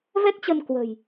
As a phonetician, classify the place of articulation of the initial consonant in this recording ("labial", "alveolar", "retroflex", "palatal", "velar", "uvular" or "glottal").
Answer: labial